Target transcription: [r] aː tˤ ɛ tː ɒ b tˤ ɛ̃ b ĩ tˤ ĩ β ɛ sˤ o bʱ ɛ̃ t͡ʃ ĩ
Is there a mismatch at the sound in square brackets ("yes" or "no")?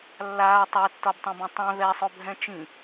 yes